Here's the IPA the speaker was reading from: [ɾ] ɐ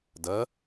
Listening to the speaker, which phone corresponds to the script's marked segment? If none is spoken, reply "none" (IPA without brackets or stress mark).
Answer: d